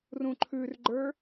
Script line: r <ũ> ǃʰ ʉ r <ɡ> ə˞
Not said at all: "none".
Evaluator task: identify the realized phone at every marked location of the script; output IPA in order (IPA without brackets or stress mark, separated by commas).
ũ, ɡ͡ǃ